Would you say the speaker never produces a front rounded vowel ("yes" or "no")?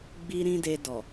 yes